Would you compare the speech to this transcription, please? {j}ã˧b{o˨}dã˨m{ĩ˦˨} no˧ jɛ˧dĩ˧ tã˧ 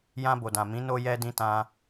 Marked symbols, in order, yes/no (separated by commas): yes, yes, no